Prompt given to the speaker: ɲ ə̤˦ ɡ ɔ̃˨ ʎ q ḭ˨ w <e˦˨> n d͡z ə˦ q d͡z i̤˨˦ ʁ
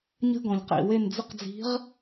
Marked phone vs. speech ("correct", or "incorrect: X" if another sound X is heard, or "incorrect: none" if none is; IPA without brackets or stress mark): correct